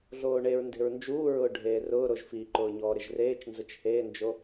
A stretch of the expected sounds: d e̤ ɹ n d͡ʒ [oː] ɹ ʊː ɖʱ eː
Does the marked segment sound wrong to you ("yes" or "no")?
yes